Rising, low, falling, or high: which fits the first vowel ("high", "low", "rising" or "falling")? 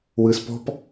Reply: low